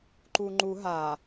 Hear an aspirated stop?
no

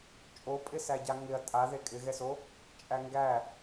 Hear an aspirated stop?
no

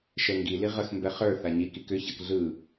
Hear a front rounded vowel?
yes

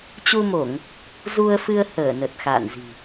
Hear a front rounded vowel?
no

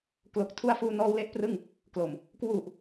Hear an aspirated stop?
yes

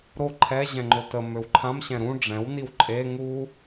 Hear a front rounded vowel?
yes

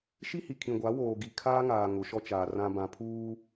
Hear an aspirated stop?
yes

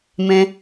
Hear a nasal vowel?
yes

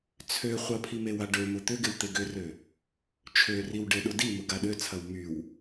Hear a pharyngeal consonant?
no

